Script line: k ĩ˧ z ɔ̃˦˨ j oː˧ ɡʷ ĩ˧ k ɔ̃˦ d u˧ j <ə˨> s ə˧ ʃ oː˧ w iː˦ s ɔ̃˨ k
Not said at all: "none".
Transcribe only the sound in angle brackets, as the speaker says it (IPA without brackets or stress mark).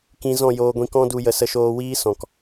ə˨